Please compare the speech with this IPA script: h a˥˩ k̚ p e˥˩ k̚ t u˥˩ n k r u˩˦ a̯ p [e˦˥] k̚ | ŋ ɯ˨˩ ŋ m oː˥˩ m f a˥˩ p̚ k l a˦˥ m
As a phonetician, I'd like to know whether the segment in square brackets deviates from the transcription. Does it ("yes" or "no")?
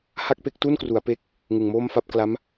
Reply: no